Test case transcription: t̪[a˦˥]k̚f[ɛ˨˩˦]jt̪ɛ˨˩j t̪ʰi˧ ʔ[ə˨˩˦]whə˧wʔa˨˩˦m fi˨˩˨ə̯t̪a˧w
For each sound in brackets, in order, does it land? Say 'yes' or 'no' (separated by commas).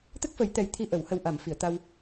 no, no, yes